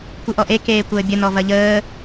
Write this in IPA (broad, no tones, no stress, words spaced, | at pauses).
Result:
kʷɯʔɔʔe keːkʷəːbʲə nɔvɐʎəː